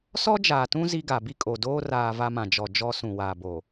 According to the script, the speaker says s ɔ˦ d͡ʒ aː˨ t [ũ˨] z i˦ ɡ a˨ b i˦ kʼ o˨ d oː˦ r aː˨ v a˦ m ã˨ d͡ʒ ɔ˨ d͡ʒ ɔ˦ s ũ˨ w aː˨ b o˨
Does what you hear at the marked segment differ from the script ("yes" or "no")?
yes